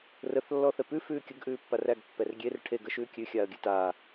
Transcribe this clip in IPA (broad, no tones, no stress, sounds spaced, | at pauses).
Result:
r ə θ lː ɔ θ ɛ p ʉ f ʉː kʲ ə ɡ ʔ ʉː pː a r æ ɡ pː ɛ r ɡʲ e r ʈʰ e ɡ ə ʃ ʉː kʲ ʉ xʲ aː ə̯ ɡʲ ʉ t aː